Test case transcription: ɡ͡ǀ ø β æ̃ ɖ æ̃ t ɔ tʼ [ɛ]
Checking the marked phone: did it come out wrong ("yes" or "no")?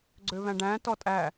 yes